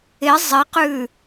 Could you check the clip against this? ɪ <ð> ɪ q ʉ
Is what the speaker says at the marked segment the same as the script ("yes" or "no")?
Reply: no